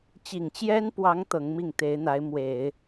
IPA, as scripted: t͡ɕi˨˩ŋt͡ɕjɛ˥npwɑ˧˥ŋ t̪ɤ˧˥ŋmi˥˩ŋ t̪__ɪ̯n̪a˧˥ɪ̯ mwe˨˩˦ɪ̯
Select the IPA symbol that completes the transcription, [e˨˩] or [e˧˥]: e˧˥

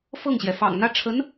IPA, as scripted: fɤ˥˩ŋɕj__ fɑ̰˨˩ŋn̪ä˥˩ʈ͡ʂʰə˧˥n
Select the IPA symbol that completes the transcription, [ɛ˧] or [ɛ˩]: ɛ˩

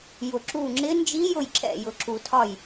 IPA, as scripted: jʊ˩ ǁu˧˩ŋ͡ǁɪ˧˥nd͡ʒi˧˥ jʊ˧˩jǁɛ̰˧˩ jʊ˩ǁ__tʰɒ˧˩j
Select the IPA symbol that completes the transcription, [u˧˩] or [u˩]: u˩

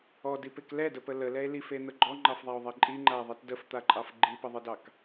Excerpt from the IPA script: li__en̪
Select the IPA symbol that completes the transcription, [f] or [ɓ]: f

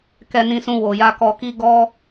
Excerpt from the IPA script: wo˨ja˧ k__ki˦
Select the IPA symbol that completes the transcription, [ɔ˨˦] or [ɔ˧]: ɔ˧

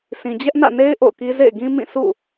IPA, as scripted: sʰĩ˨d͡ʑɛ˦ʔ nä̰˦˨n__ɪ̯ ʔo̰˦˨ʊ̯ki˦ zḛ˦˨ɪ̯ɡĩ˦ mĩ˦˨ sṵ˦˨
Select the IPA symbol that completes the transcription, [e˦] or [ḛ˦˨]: e˦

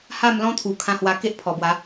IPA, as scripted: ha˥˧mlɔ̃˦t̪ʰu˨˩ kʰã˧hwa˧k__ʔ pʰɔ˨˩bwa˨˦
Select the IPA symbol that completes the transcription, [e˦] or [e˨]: e˦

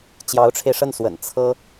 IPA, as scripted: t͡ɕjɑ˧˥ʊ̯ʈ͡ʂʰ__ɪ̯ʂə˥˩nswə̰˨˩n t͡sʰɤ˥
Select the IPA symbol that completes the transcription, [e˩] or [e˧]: e˧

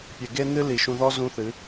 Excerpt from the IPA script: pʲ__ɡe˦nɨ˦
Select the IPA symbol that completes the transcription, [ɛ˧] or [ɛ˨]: ɛ˨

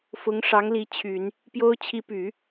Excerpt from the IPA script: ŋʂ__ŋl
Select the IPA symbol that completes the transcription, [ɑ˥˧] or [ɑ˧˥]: ɑ˧˥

